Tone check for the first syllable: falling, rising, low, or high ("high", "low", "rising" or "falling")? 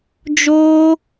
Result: high